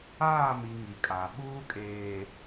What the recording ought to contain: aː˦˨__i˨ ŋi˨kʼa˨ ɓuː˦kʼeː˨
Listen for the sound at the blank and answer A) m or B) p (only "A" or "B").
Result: A